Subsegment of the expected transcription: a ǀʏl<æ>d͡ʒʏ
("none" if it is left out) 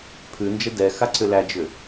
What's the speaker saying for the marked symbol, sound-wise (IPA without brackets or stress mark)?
æ